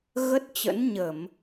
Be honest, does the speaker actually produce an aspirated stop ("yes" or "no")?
no